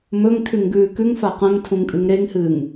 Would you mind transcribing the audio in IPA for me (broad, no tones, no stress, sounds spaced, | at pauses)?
m ɵ ŋ tʰ ʉ ŋ ɡ ʉː k ʉ ŋ f a q ɐ̃ ŋ tʰ ũ ŋ kʼ ɨ ŋ ɾ e ŋ h ɨː ŋ